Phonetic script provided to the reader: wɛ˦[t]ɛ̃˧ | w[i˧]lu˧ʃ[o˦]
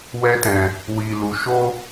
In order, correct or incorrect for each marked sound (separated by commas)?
correct, correct, correct